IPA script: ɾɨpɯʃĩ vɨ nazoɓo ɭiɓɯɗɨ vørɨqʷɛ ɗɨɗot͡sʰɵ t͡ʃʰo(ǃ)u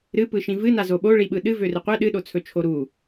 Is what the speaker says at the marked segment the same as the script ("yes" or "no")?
no